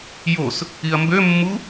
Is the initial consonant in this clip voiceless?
no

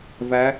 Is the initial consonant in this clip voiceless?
no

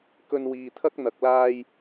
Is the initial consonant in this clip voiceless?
yes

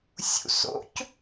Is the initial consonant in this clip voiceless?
yes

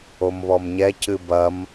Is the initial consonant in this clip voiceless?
no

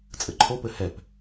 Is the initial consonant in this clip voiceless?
yes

